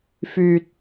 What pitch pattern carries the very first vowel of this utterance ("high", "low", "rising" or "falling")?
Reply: low